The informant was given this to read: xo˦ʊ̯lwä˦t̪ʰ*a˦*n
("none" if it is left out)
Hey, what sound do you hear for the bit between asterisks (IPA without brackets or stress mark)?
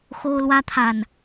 a˨